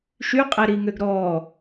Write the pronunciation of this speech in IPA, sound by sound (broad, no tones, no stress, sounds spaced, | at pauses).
ʃ y qʼ ɛ ɾ i ŋ ø ɡ ɾ ɔ